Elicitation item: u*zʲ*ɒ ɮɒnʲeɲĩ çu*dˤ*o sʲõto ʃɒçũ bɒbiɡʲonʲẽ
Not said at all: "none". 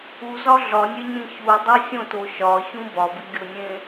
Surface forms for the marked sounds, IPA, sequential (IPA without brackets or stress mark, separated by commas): z, dˤ